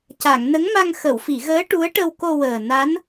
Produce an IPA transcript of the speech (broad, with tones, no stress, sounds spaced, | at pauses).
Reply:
c a˨˩˨ ŋ n ə˧˥ ŋ m a˧ ŋ x ə˨˩˨ w f i˨˩˨ ɣ əː˧˥ ʈ u˧˥ ə̯ ʈ ə˧ w k o˧ w əː˨˩ n a˧˥ n